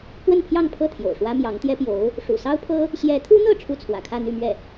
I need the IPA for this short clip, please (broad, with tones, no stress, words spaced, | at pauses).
kwə˥˧npʰjɑ˥˧ŋpʰɤ˥˩ t̪ʰjo̰˨˩ʊ̯ʂwä˥ mjɑ˧˥ŋt̪jɛ˥pjo˧˥ʊ̯ | ʂṵ˨˩sɑ˥ʊ̯pʰɤ˥ | ɕjɛ˧˥t̪ʰu˥n̪ɤ˥˧ ʈ͡ʂʰu˥˩t͡sʰwä̰˨˩kʰä˥˧ n̪y˥˧mɥɛ˥˩